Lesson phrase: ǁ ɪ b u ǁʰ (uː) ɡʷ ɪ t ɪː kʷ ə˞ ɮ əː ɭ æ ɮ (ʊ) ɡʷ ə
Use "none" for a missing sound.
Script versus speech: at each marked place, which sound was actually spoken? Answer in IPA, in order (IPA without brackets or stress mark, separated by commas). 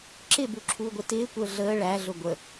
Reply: uː, ʊ